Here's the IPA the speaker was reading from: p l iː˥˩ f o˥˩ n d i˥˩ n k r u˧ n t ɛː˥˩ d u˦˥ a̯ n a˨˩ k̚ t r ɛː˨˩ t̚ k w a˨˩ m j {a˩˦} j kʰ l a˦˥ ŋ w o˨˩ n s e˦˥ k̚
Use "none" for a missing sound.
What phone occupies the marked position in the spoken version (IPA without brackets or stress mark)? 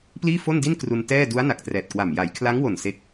a˩˦